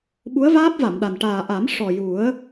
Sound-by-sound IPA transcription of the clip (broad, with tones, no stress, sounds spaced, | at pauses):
ɓ u˧˥ ə̯ v aː˦˥ p̚ v a˨˩˨ m ɗ a˨˩ n ʈ aː˨˩ ʔ a˨˩˦ m ʂ ɔ˨˩ j u˨˩˦ ə̯